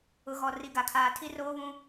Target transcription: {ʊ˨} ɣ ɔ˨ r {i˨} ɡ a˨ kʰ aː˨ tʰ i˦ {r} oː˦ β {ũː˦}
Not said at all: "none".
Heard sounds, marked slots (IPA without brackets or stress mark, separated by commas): ʊ˨, i˨, r, ũ˦